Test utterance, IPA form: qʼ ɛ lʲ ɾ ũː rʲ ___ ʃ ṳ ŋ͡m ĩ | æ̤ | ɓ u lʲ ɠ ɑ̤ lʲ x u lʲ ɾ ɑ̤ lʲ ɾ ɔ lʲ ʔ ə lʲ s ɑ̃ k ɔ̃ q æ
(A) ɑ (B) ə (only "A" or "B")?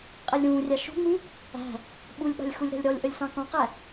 A